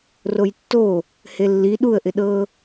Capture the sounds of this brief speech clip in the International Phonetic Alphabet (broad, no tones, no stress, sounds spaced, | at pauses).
r o j tː o | h e lː i ɗ u ə̯ ʔ ɪ ɗ ɤ